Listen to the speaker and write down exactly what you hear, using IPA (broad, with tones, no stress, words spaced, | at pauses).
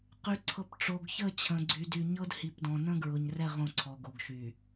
qy˨ǀʰɤ˨p ʈ͡ʂo˨ɡçə˦˨ t͡ɕʰə̃˨ɡ͡ǀy˨dy˨ɲɤ˦d hi˨pdɔ̃˨ nə̃˦ɡɹʊ˨ɲrɛ˦˨ ʁõ˦˨ǀʰɔ˨ɡo˨ɡʃy˨